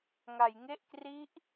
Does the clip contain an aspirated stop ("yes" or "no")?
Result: no